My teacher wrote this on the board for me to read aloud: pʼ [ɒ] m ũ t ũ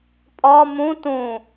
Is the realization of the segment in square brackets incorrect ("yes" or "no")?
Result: no